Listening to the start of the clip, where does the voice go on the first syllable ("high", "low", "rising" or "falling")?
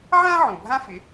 high